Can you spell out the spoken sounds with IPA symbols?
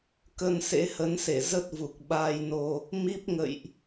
k ə˧ n s ḛ˧˥ h ə˨˦ n s e˧˩ z ə˦˥ t̚ v u˨˩ k̚ ɓ aː˧ j n o˧ | m i˦˥ p̚ ŋ ə̰˧˨ j ʔ

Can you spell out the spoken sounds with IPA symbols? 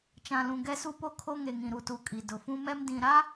t͡ʃ ã˨ l ũ˨ ɡ ɛ˦ s u˦ p o˦ kʰ o˦ ŋ e˨ ŋ ĩ˨ ɾ u˨ t u˨ kʼ i˨ d ʊ˨ f ũ˦ m ɛ˦ m d ĩ˨ ɾ a˦

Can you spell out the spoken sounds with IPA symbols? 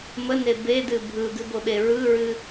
m ə n e b e d ɨ bʱ ɯ ɡ ɨ b o ɓ e ɹ ɯ ɹ ɨ

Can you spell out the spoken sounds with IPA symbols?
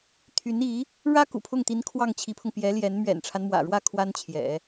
t̪ʰ y˧˥ n i˧˥ | ɻ ä˥ k ṵ˨˩ pʰ ʊ˥˩ ŋ t̪ i˧˥ n kʰ w ɑ˥˩ ŋ t͡ɕʰ i˧˥ pʰ ʊ˧ ŋ p j ɛ˧˥ l j ɛ˧˥ n m ɥ ɛ̰˨˩ n ʈ͡ʂʰ a˦ n m w ä̰˨˩ ɻ w ä˥˩ kʰ w a˥ n t͡ɕʰ j ɛ̰˨˩˦

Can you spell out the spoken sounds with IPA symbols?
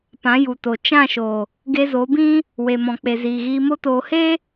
p ã˨˦ j u˨ t o˨ t͡ʃ ã˦˨ ʃ o˨ | ɡ e˧ z o˨˦ b ĩ˦ | w e˨ m ɔ̃˨ k͡p e˨ z iː˨ ɣ iː˧ m o˦ t oː˧ h e˦

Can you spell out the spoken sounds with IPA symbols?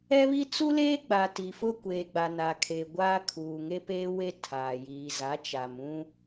ɛ˦ β i˦ t͡s u˦ l eː˦ ɡ͡b a˨ t i˨ f ʊ˦ kʷ eː˨ ɡ͡b a˨ n aː˨ kʰ eː˨ ɡʷ aː˦ kʰ uː˨ ŋ e˦ p eː˦ w e˦ tʰ aː˨ j iː˨ z a˨˦ t͡ʃ a˨ m ũ˦

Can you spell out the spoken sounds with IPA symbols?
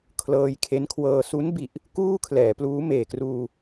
kʰ l ɤː˧ j kʰ e˦˥ n kʰ w ɤː˧ s u˦˥ n b i˨˩ ʔ | k uː˥˩ kʰ l ɛː˩˦ p l uː˦˥ m eː˨˩ k r uː˧

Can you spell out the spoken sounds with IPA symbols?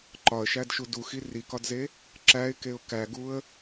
ǃ ɒ ə̯ ʃ æ d ʃ u d u x i r i k ɒ d z e | ǁ æ ɪ̯ k e ʊ̯ k æ ɡ u ə̯

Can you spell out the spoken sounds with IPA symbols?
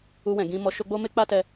u˧ w ɛ̃˨ ɡ ĩ˧ m ɔ˧ ʃ o˦ ɡ͡b o˦ m e˦ k͡p a˦ t ɛ˧

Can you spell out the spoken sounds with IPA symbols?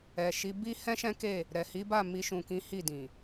ɛ˨ ʃ i˨˦ b i˦ h ɛ̃˦ ʃ ɛ̃˦ k e˦˨ | ɾ ɛ˨ h i˨˦ b a˦˨ m i˧ ʃ ũ˨ k ĩ˨˦ h i˦˨ d ĩ˨

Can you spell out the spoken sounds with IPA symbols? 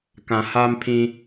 k ã˨ h aː˦ m pʰ ĩ˦

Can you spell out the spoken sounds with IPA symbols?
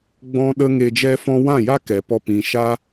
ɡ͡b ɔ̃˦ ɗ ə˦ ŋ e˧ d͡ʒ ɛ˦ f ɔ̃˦ w ã˦˨ j a˦ k ɛ˨ p ɔ˧ p ĩ˨ ʃ a˦

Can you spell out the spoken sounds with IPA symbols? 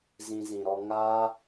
z ĩ˧ z ĩ˨ ɾ ɔ˧ ŋ aː˦

